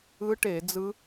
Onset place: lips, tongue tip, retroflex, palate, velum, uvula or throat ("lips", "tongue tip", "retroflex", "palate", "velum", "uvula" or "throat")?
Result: retroflex